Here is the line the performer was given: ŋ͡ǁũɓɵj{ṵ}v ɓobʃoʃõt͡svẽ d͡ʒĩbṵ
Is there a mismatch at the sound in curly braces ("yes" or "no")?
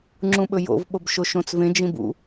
yes